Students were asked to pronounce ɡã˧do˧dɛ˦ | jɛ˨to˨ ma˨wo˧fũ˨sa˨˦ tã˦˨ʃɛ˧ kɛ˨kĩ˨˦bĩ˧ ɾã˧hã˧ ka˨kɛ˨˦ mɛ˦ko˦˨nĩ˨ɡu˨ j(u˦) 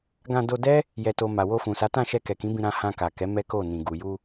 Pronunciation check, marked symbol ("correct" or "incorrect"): incorrect